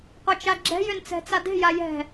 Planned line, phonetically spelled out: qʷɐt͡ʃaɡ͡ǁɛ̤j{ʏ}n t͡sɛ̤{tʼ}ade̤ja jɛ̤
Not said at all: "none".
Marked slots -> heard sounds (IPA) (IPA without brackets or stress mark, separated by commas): ʏ, t͡s